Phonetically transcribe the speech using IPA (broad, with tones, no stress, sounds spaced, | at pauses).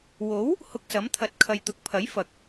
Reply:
w o˨˥ w | h ʊ˧ k̚ s ɐ˨˥ m t̪ʰ ɐ˨˥ t̚ kʰ ɐ˨ j t̪ ʊ˨˥ k̚ pʰ ɐ˨˥ j f ɐ˨ k̚